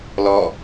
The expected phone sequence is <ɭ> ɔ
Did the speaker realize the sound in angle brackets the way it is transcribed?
no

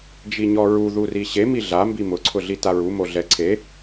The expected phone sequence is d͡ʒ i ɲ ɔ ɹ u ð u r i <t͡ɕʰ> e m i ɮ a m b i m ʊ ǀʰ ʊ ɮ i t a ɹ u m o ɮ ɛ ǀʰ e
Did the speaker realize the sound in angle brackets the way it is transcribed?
no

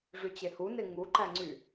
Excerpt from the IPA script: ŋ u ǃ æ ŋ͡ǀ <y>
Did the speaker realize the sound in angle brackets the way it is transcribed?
yes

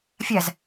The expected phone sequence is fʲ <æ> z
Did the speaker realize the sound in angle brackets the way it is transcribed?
no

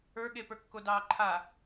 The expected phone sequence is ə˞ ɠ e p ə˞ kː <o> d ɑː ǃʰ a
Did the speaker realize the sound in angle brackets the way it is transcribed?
yes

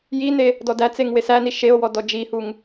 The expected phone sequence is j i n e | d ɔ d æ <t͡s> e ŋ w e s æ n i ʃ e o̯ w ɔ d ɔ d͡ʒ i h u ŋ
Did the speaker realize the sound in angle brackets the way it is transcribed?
yes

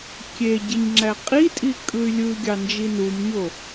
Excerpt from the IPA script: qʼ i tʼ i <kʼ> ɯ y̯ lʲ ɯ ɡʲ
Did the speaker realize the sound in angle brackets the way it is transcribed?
yes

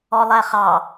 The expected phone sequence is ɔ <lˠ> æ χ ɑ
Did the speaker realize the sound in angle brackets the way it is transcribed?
yes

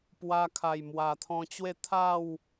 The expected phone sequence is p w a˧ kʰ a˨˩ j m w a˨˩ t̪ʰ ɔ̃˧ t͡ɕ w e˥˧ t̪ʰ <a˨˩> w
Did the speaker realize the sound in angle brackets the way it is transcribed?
no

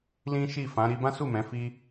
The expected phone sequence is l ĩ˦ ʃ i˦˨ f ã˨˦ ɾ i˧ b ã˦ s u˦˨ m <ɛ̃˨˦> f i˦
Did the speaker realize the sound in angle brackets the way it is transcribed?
yes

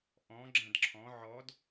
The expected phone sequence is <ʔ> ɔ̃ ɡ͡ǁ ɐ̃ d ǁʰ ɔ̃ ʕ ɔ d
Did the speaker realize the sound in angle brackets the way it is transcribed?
yes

